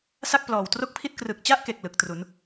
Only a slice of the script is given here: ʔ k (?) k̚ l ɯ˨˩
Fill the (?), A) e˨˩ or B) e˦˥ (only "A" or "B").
A